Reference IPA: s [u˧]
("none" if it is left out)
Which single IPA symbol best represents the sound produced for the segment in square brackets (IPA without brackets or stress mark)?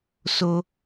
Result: o˧